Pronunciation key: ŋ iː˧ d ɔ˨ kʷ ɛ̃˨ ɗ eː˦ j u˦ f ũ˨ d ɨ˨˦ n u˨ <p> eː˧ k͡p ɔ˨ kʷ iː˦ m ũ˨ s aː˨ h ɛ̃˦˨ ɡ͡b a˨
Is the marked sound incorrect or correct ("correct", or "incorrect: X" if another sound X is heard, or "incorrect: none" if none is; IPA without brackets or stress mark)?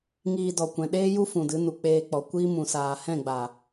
incorrect: k͡p